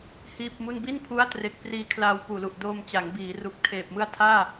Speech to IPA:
h iː˥˩ p̚ m u˥˩ n b i˥˩ n pʰ u˦˥ a̯ t r e˨˩ k̚ p r iː˧ kʰ l aː˧ w p uː˨˩ l u˨˩ ʔ d oː˧ m t͡ɕ a˩˦ ŋ b iː˩˦ r u˨˩ k̚ tʰ eː˨˩ p̚ m ɯ˦˥ a̯ tʰ aː˥˩

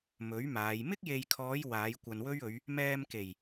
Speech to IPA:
m ɵ˨˥ ɥ m aː˨˧ j m ɪ˥ k̚ j e˨ j kʰ ɔː˨˧ j w aː˨˧ j kʷ ɐ˨ n w ɵ˥ ɥ ɵ˨˧ ɥ | m ɛː˧ m k e˨˩ j

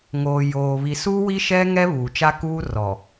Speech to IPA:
ŋ oː˨ j oː˨ β i˨ s uː˦ w i˦ ʃ ɛ˦ ŋ ɛ˦ β uː˨ t͡ʃ a˦ k uː˦ r ɔ˨

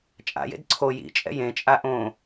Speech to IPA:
t͡ʃʼ a̰ j ḛ d ǀʰ o j ḭ t͡ʃʼ ɛ̰ j ẽ t͡ʃʼ a ʔ õ

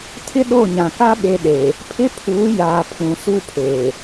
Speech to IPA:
tʰ ɪ˦ ɗ o˦˨ ɲ ã˨ k a˦ ɓ e˦ ɗ e˨ | pʰ ɪ˦ pʰ uː˨˦ j aː˨ pʰ ũ˨ s u˦ pʰ eː˨

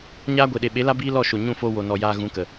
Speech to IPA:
ɲ aː˦ ɡʷ e˨ ɗ e˨ ɓ e˨˦ l a˦ b iː˦ l ɔ˦˨ ʃ o˨ ɲ ũ˦˨ f oː˧ w o˨ n ɔ˨ j aː˧ ɣ ũ˨˦ k ə˨

